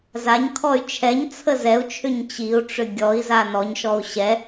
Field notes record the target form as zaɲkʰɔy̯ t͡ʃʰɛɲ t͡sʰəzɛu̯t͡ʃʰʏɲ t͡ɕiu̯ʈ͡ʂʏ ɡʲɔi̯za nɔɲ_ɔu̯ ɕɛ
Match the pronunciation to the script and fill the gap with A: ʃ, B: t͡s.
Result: A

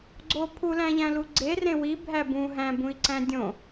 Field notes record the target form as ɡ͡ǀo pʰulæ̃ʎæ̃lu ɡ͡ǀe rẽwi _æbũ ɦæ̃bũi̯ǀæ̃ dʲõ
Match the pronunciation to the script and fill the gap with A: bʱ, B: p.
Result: A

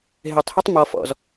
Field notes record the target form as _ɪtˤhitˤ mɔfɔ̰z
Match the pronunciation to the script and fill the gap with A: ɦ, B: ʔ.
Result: A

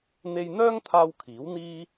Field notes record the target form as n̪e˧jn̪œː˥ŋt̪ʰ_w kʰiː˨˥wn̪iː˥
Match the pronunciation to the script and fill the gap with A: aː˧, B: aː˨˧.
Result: A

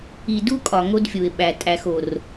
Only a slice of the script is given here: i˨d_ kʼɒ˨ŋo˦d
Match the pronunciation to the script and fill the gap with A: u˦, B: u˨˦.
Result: A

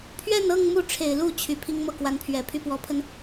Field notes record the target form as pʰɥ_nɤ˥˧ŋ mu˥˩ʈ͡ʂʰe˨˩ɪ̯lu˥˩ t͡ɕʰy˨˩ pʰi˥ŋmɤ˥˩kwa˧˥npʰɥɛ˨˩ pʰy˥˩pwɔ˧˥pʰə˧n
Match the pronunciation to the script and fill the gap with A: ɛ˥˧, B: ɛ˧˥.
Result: A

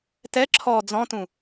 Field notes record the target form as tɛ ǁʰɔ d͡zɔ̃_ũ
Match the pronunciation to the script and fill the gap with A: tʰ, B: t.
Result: B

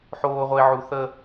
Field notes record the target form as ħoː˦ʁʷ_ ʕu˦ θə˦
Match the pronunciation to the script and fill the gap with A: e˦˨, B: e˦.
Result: B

